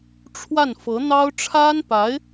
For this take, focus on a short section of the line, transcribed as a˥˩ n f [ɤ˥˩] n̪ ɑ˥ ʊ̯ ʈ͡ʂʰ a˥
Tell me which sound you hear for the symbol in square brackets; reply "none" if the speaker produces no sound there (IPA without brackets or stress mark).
ɤ˧˥